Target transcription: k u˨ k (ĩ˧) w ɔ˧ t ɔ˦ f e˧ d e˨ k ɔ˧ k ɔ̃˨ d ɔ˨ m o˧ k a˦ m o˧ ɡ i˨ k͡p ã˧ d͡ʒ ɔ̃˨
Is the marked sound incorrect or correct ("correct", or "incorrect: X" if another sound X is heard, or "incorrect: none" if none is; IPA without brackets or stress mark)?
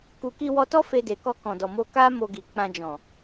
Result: incorrect: i˧